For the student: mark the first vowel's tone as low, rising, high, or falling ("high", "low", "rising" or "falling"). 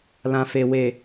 low